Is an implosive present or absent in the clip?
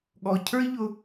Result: present